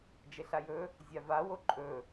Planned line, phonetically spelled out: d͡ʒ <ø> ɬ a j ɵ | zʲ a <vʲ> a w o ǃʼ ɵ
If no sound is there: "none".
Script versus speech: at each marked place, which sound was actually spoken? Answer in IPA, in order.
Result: e, v

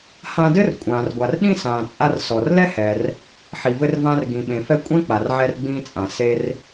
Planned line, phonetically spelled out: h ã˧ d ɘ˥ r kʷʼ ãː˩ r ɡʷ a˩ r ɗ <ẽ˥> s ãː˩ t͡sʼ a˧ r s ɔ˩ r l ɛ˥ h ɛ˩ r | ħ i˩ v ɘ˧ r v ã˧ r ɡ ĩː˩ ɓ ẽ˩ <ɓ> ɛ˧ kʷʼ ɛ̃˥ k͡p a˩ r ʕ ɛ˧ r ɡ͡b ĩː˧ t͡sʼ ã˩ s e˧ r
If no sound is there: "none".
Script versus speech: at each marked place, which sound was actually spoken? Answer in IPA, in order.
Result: ĩ˥, f

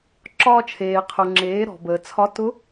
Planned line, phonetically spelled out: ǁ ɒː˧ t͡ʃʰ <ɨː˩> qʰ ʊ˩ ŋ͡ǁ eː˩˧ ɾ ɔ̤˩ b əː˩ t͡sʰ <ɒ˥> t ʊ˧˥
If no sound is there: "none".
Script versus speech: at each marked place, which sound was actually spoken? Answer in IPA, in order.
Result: eː˩, ɒ˧˥

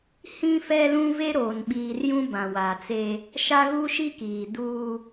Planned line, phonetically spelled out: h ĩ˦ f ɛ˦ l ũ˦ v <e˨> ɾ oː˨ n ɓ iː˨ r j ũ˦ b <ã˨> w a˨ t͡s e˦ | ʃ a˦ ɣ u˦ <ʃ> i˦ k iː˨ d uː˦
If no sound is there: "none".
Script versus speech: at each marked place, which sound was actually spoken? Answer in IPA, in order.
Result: e˦, ã˨, ʃ

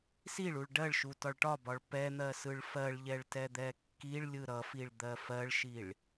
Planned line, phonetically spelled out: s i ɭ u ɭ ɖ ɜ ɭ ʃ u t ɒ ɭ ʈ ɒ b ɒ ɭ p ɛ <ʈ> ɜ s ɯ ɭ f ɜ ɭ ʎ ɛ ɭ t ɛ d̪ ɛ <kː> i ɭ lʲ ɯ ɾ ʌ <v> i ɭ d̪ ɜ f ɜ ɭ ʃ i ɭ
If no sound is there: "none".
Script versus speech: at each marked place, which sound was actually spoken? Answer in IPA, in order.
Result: n̪, kː, f

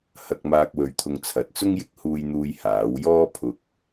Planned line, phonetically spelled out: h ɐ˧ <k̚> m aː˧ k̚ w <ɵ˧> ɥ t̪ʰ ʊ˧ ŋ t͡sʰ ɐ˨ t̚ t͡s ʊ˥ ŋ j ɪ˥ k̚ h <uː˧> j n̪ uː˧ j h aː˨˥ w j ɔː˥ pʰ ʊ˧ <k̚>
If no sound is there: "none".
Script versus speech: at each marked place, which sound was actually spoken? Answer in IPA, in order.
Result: k̚, ɵ˧, uː˧, k̚

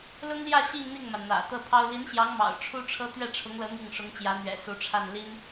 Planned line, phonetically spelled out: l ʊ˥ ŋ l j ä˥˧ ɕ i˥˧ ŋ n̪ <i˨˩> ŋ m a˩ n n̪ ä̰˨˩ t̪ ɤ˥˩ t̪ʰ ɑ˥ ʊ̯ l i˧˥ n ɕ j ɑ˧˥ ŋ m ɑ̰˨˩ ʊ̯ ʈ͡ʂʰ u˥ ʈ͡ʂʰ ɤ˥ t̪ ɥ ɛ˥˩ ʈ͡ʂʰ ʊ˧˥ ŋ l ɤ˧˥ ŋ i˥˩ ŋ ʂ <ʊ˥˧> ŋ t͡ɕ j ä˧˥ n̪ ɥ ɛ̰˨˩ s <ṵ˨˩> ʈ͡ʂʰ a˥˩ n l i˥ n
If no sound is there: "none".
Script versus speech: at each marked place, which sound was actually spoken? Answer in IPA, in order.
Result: i˥˩, ʊ˧˥, u˧˥

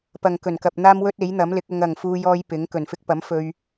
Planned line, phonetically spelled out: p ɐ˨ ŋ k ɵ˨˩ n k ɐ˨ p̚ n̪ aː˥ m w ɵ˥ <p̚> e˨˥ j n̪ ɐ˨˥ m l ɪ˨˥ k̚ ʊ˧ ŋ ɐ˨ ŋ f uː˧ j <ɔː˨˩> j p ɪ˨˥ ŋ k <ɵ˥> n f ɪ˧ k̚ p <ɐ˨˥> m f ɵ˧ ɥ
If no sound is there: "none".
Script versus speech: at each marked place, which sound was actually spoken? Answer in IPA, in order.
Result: t̚, ɔː˧, ɵ˨˩, ɐ˨˥

